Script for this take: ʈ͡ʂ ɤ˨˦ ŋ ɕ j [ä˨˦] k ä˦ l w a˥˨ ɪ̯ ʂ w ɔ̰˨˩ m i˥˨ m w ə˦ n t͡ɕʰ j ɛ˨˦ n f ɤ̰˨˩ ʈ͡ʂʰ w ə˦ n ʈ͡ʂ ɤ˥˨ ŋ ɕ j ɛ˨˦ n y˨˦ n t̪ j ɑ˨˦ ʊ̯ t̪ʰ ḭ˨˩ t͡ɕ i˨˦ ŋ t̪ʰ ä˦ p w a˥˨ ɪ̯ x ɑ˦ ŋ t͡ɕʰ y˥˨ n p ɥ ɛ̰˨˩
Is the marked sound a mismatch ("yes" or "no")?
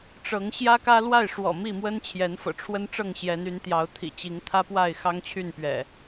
yes